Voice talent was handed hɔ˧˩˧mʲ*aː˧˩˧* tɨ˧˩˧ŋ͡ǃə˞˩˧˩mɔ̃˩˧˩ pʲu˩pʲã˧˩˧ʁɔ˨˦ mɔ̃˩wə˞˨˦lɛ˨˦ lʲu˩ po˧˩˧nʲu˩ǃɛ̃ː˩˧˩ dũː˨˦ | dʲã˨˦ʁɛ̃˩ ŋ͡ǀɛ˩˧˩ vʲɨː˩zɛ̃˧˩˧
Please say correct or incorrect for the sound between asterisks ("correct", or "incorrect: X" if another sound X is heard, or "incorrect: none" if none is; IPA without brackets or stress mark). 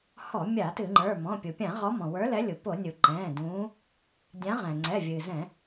incorrect: a˧˩˧